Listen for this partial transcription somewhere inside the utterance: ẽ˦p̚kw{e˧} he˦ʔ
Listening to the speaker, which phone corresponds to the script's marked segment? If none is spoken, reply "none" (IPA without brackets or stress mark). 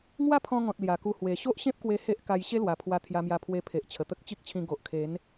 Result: e˧